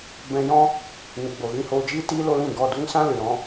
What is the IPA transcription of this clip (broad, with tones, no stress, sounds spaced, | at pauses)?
b ɛ̃˧ j ɔ̃˦ | n ɨ˨ ɡ͡b o˨ ɣ ĩ˧ h oː˧ d͡ʒ iː˦ t iː˦ l o˦ l ĩ˦˨ ɡ ɔ˦˨ d u˦ ŋ s ã˦ l ɨ˨ ɾ ɔ̃˧